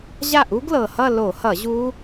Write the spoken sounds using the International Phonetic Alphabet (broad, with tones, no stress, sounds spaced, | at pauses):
ʑ a˥˩ ʔ u˦˥ ɡ l ɤ˨˩ h ʌ˥˧ l o˧˩˧ h ʌ˧˩˧ ʑ u˦˥